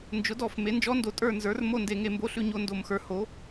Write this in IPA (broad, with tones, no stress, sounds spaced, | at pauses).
n d͡ʒ ʊ˩˥ d ɔ˧˩˧ f m e˩˥ n d͡ʒ ɔ˧˥ n d o˩˥ tʼ ə˞˦˨ n z ə˞˩˥ r m o˦˨ n d e˧˩˧ ŋ e˧˩˧ m b o˧˥ ɬ ʉ˦˨ ɲ o˦˨ n d o˧˩˧ m x ə˞˩˥ h o˩˥